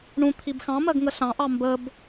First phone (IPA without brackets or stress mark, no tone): ɳ